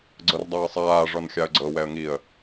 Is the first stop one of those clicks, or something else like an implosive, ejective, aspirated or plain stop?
click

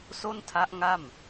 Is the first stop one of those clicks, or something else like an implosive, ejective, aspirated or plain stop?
aspirated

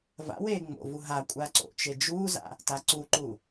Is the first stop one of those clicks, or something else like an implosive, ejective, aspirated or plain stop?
ejective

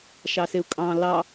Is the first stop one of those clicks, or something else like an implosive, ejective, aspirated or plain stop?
ejective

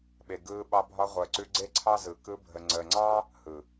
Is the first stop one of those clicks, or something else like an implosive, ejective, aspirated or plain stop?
implosive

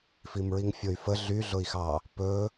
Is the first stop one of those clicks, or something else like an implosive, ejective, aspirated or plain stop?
plain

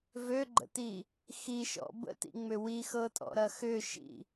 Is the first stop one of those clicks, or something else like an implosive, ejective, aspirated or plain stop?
click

